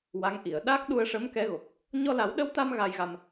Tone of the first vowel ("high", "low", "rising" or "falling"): rising